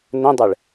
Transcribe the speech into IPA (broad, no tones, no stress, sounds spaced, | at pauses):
n ə̃ dˤ ɛ ɭ